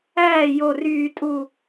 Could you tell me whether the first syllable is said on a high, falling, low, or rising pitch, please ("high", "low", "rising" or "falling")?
falling